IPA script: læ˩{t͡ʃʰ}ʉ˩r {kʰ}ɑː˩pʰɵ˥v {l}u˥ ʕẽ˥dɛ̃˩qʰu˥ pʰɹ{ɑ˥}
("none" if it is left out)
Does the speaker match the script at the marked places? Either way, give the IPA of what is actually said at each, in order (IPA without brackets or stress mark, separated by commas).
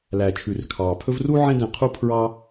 t͡ʃʰ, kʰ, r, ɑ˥